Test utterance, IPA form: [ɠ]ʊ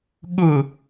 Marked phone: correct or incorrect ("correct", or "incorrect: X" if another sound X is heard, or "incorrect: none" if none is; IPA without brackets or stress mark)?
correct